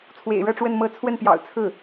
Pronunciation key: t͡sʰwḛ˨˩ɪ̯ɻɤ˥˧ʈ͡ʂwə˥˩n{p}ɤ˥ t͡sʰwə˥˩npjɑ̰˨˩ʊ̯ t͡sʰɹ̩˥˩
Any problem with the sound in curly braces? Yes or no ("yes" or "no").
yes